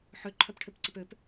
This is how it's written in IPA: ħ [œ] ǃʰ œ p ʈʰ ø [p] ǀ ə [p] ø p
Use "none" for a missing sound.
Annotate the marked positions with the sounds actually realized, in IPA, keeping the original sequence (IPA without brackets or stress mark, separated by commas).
ø, p, p